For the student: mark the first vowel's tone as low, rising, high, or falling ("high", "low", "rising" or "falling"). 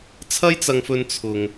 high